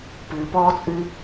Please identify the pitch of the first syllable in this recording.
low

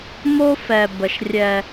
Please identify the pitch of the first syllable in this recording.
high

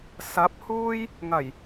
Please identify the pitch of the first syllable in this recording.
rising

